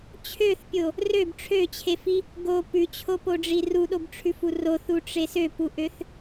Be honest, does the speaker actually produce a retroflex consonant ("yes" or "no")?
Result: yes